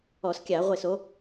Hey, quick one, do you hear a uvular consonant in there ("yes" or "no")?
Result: yes